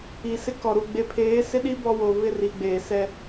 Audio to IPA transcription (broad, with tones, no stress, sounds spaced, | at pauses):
i˨ s ɪ˦ k ɔ˨ ɾ u˨ ɡ͡b e˨ pʰ eː˨˦ s ɪ˦ ɗ i˦ b ɔ˦ w o˨ β ɪ˦˨ r i˨ ɡ͡b eː˨ s ɛ˦